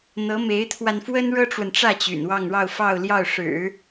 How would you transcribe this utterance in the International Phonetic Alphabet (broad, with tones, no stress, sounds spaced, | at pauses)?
n̪ ɤ˧˥ m e˧˥ ɪ̯ t̪ʰ w a˧ n f w ə˥ n ɻ ɤ˥ ʈ͡ʂ w ə˨ n ʈ͡ʂ ä˥˩ t͡ɕ y̰˨˩ n w ɑ˥˧ ŋ ɻ ɑ˥˧ ʊ̯ f ɑ˥˧ ʊ̯ l j ɑ˥˩ ʊ̯ ʂ ɻ̩˨˩˦